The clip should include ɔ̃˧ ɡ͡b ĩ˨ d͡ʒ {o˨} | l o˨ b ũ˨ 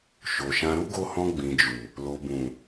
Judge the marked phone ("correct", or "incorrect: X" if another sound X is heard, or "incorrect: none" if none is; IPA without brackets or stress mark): incorrect: u˨